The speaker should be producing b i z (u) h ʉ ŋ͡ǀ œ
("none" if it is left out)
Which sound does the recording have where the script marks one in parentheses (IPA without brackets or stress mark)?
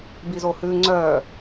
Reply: o